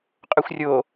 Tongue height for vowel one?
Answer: mid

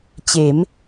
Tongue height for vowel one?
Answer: mid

